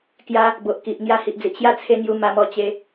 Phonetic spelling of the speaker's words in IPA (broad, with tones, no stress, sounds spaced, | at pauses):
k j a˧ | b o˨ ʔ k i˨ ʔ ŋ j a˧ h i˨ ʔ d͡z i˨ ʔ ɕ j a˦ t͡sʰ e˧ ŋ j u˧ m a˧ m ɔ˧ t͡ɕ e˧